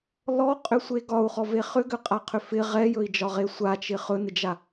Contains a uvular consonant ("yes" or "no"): yes